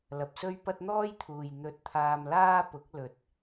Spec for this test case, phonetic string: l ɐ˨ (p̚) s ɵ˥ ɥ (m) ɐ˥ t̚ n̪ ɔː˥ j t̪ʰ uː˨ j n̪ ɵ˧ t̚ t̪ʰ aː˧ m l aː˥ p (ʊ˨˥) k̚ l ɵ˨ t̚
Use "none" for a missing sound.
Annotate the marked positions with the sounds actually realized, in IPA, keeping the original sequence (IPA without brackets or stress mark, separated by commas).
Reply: p̚, p, ʊ˨˥